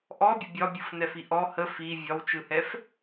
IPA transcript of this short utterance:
ʔ ɔ bʲ ə bʲ ɒ bʲ ɯ f n ɛ f i ʔ ɔ h ə f i vʲ ɒ w t͡ʃ ɯ h ɛ f

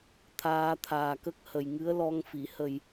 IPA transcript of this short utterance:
t̪ʰ aː˧ t̪ʰ aː˨˩ k ə˦˥ k̚ h ə˨˩ j ŋ ɨ˧˥ ə̯ l ɔ˧ ŋ f i˨˩˨ h ə˨˩ j

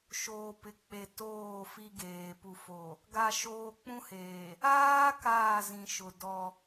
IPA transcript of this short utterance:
ʃ oː˨ p ɪ˨ k͡p e˨ t oː˦˨ f i˦ ɡ eː˨ p u˨ f o˨ | ɡ a˨ ʃ oː˨ k͡p ũ˦ h eː˨ | aː˦ k aː˦˨ z ĩ˨ ʃ ʊ˨ d ɔ˦

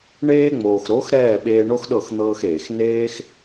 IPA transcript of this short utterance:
ɳ eː˧ ŋ͡m oː˨ x ɾ o˨˦ x ɾ ɛː˦˨ ɓ eː˧ ɳ o˦ x ɗ ɤ˦˨ x n̪ ɤː˧ x eː˨ x n eː˦ x

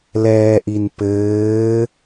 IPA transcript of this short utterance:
l ɛː ʔ i n p ɘː

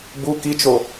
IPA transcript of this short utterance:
b u k i t͡ʃ o

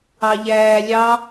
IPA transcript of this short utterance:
ɑ ʎ æː lʲ ɑ

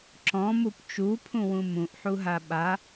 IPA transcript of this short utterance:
ǁ ɔ̃ m u p t͡ʃ u pʰ ũ w ũ m ũ ʔ ħ u ɦ a ɓ a

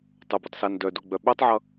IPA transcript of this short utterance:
tˤ o b u tˤ s a n d œ d o ɡ͡b œ ɓ œ tˤ ʕ ʌ

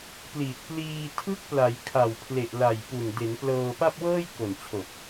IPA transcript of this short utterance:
p l i˨˩ t̚ p l iː˧ tʰ ɯ˦˥ k̚ p l a˩˦ j kʰ a˨˩ w pʰ l e˨˩ ʔ l a˨˩ j p u˨˩ n d e˩˦ n p l ɤː˧ p a˥˩ p̚ w ɤː˥˩ j k o˨˩ n t͡ɕʰ o˨˩ k̚

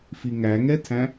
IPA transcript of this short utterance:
f i ŋ æ ŋ ɛ tʰ æ̃

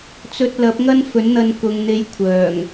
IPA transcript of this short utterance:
t͡s ɵ˧ t̚ l ɐ˨˥ p̚ ŋ ɐ˥ n f ɵ˨˥ n n̪ ɐ˧ n k ʊ˨ ŋ n̪ e˨˧ j kʷʰ œː˨˩ ŋ

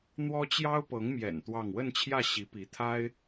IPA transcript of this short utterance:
n̪ w ɔ˥ t͡ɕ j ɑ˥ ʊ̯ p ɤ˧˥ ŋ m j ɛ̰˨˩ n t̪ w ɑ˥˧ ŋ w ə˥˧ n t͡ɕʰ j ä˥˩ ɕ i˧˥ p i˧˥ t̪ʰ a˥ ɪ̯

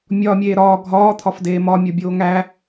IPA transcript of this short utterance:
mʲ ɒː mʲ eː ɾ ɒː ɡʱ ɒː t̪ʰ ɒ f d eː m ɒ mʲ o bʲ oː ŋ æ

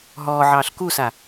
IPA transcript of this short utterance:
ɦ ɔː ʕ ɑː ɬ k u s a

